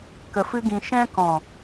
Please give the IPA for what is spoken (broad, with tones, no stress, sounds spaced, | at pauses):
k ə˧ f ɨ˦ ɡ ĩ˧ ʃ ɛ̃˦ k ɔ̃˨